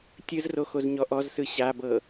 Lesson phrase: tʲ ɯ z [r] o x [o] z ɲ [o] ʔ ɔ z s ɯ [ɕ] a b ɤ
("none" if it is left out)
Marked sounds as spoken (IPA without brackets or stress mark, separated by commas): r, o, ɔ, ɕ